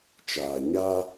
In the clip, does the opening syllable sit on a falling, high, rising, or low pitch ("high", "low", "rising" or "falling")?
low